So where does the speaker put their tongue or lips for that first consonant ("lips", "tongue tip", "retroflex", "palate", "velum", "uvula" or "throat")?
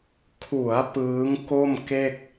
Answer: velum